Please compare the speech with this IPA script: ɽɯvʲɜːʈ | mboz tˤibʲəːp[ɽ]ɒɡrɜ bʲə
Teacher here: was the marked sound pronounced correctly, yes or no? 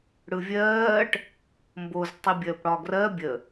yes